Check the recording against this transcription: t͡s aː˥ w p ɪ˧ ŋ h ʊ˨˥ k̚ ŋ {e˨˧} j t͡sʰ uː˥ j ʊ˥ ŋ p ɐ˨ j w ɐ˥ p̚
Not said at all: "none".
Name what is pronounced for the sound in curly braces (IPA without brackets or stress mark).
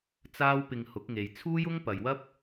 e˨